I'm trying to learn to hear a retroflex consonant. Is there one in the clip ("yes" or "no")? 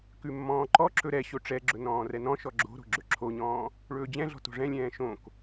yes